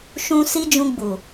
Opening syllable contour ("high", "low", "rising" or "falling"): high